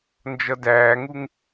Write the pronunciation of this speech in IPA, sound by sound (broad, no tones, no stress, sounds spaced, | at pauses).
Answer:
n d͡ʒ ʌ d æː ŋ u ŋ